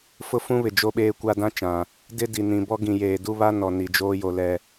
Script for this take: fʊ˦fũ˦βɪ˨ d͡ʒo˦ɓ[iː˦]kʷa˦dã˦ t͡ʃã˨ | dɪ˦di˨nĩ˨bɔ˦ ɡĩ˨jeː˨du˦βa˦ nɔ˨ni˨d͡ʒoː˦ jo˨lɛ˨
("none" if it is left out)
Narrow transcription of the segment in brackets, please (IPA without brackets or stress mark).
eː˦